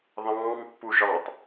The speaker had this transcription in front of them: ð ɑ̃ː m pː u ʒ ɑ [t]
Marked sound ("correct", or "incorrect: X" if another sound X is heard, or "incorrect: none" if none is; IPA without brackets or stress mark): correct